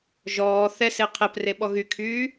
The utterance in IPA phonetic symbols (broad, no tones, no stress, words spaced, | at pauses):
ʒɔː θɛse qʰɛpreɓɔ ɣykʰyː